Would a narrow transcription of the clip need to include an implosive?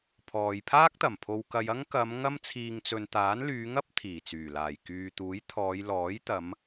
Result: no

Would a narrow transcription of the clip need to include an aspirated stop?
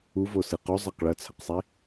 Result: yes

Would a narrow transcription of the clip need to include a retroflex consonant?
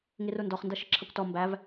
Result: no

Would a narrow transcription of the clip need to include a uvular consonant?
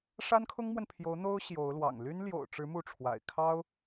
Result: no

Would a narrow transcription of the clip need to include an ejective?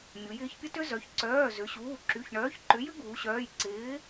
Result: no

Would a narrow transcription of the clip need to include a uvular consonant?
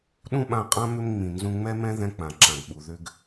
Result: yes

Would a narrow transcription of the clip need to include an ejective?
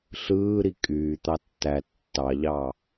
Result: yes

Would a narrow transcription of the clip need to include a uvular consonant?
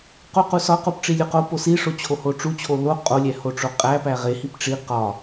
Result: yes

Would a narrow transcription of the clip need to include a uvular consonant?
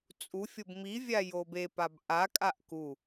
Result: no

